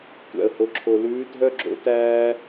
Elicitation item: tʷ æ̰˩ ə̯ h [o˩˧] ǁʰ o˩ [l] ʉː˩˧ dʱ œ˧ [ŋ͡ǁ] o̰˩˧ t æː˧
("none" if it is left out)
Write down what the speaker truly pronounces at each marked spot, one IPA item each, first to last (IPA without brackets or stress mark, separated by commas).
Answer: o˩˧, l, ɡ͡ǁ